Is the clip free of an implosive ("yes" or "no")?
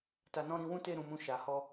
yes